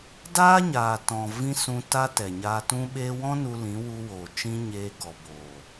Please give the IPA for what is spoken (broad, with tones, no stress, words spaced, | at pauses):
daː˦ɲaː˨tɔ̃˨ vĩ˦sũ˧ta˦ tɛ˨ɲaː˧tũ˦ɓeː˦ wɔ̃˦ nu˧lĩ˨˦wu˧woː˨ t͡ʃĩ˧ ɲeː˧ɡɔ˨boː˨